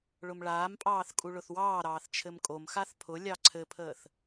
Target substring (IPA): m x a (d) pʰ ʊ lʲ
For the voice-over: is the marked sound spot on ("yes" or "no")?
no